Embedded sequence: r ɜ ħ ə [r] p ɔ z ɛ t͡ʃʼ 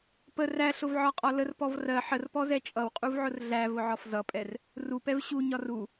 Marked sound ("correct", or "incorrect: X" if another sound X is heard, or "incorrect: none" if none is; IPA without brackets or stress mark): correct